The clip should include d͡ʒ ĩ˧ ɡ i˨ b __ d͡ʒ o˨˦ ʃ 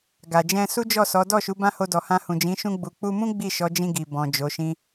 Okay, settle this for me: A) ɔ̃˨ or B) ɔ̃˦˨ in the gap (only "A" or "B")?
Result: A